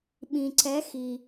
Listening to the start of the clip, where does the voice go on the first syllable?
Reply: low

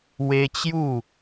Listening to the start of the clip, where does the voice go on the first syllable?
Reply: high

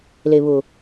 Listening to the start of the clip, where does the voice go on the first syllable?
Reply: low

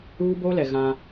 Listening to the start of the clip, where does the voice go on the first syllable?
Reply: high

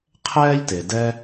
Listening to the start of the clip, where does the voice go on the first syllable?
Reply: high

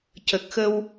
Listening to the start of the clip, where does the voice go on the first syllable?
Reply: low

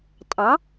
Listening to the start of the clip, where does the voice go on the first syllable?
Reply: rising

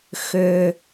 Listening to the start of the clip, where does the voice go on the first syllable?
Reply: low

